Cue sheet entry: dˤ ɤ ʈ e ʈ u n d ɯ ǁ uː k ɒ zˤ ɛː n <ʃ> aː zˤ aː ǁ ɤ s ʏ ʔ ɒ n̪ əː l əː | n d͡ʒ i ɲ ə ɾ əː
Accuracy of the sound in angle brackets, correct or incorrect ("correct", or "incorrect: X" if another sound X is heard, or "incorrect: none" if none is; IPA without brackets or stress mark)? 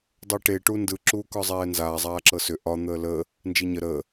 incorrect: z